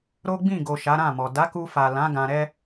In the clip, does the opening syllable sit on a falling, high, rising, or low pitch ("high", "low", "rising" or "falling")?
high